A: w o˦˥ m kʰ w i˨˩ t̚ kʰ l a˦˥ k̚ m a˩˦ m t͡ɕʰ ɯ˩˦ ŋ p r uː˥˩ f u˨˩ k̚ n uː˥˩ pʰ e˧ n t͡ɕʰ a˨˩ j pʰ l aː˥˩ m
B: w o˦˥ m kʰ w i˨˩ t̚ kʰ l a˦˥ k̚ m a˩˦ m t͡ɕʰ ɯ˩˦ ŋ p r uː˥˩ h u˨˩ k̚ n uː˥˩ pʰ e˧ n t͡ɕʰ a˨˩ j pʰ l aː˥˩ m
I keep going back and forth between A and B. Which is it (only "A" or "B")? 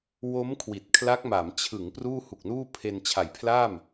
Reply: B